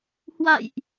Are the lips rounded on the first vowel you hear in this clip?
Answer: no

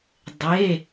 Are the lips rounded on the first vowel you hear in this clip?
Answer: no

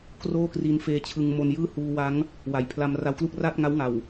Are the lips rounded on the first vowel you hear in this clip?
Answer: yes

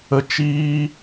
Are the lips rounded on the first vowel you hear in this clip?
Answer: no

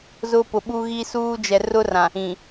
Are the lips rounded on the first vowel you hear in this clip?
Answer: yes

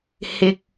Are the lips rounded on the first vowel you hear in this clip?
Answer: no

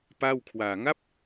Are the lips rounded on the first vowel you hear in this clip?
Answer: no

